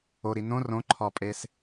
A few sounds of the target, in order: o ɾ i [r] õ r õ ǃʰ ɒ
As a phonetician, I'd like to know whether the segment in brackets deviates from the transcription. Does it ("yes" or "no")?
yes